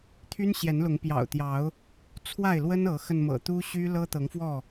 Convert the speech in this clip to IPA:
t̪ʰ y˦ n ɕ j ɛ˨˦ n l ʊ˨˦ ŋ p j ɑ̰˨˩ ʊ̯ t̪ j ɑ˨˦ ʊ̯ | t͡sʰ w a˥˨ ɪ̯ l w ə˦ n ɤ˨˦ x ə˧ n m ɤ̰˨˩ t̪ u˦ ɕ y˦ l ɤ˦ t̪ ɤ˨˦ ŋ f w ɔ˥˨

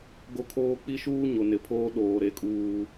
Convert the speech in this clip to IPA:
ɡ o˦ kʰ oː˦ k͡p i˦ ʃ uː˦ ɲ o˨ n ɪ˨ pʰ oː˦ ɗ oː˨ ɾ e˦ kʼ uː˦

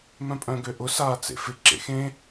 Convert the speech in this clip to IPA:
m œ̃ pʼ œ̃ ɡ ø ʔ ʊ s aː t͡s ḛ f ɪ ǁ ḛ x ẽ

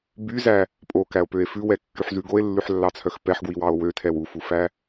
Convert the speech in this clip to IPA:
b y z æ | pʼ o k æ o̯ p ø e̯ f ʉ w ɛ kː y ħ z ʉ ɡ o e̯ lː ʉ ħ lː ɑ t͡sʰ œ x p ɛ ħ ɡ w i w ɑ o̯ w ø tʰ ɛ w u f u f æ

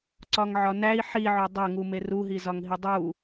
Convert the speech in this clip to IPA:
ǀ ɒ ŋ ʕ ɒ n æ i̯ ħ i ʕ o dˤ æ ŋ u m e r u ɦ i z ɒ ŋ ɦ i dˤ u

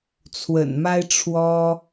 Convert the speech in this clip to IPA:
t͡sʰ w ə̰˨˩ n m a˥ ɪ̯ ʈ͡ʂʰ w ɔ˥

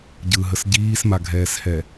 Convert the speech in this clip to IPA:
ɟ ɯ ɦ ə s ɟ iː s m a ɡʱ ɛː s h ɛ

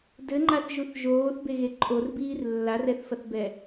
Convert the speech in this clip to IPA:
d ɘ ŋ͡ǃ a θ ʒ u θ ʒ oː θ b e ɣ e ǃʼ o r b iː r lː a r ɛ θ f ɐ θ b ɛ

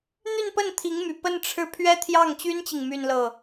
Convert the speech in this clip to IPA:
n̪ y˥˧ n p ə˥˩ n t̪ʰ i˧˥ ŋ m y˨˩ p ə˥˧ n ʈ͡ʂʰ ɻ̩˥˩ pʰ ɥ ɛ˥ t̪ʰ j ɑ˥˩ ŋ t͡ɕ y˥ n t͡ɕ i˨ ŋ m y˥˧ n l ɤ˥˩

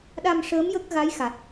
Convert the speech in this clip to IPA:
ɗ a˧ m ʂ əː˧˥ m j ə˦˥ k̚ ɣ a˧˥ j x a˨˩ t̚

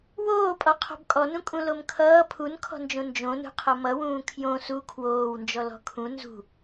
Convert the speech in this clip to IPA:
w oː pʼ ɔ qʰ ɔ̤ b kʼ ɔ n ũ kʼ ũ l o m kʰ ʌː pʰ u n kʰ ɔ̤ n d͡ʒ õ n d͡ʒ õ n ṳ qʰ ʌ m ʌ w ũː kʰ j õ s u kʰ w oː w n d͡ʒ ɔ l ɔ̤ kʰ ũ n z ṳ

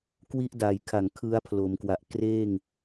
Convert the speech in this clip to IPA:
k w i˦˥ ʔ d a˨˩ j kʰ a˨˩ ŋ kʰ ɯ˦˥ a̯ pʰ l o˩˦ m k w a˨˩ ʔ k r eː˥˩ ŋ

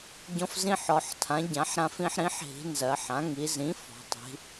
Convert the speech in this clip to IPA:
ɟ ɔ̃˦ f z ĩ˦ ħ ɔ˩˧ ħ tʰ ã˩˥ ɟ ã˩˥ ħ ɾ ã˦ f ĩ˦ ħ ɾ ĩ˩˥ ħ ɦ i̤˩˧ n z ɜ˩˧ ħ ã˩˥ ŋ i˩˧ z ĩ˩˥ f ɔ̤˩˧ tˤ i̤˩˧

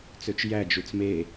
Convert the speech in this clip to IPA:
t͡s ø t͡ʃ j æ d͡ʒ u t͡s m e

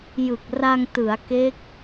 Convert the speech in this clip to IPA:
j ɯ˨˩ k̚ r a˧ ŋ t ɯ˩˦ a̯ k e˦˥ k̚

